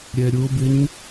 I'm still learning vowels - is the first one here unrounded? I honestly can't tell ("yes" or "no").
yes